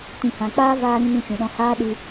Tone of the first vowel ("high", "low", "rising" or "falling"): low